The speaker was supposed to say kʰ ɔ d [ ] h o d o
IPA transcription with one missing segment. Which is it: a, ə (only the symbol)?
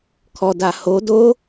a